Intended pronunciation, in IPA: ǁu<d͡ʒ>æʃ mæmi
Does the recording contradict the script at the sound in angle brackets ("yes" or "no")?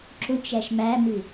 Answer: yes